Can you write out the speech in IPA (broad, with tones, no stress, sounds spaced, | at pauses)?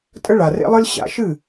tʼ ə˦ ɭ a˩ r ḛ˦ lˠ ɨ˦ l ɕ a̰˨˦ ʃ ɨ˥˩